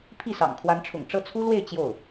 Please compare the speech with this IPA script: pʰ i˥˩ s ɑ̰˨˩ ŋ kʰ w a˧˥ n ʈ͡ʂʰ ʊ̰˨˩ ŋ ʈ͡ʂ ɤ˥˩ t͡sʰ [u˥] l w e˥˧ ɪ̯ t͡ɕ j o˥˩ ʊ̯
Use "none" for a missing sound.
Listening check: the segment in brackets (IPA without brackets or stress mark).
u˥